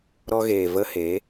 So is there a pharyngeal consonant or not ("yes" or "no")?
no